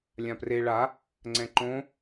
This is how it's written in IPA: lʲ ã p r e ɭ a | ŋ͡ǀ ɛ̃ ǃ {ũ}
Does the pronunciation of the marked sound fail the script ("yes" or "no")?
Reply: yes